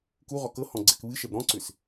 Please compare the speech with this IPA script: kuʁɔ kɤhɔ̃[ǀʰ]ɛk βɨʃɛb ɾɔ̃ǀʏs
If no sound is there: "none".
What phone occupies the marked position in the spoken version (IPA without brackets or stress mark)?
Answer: ɡ͡ǀ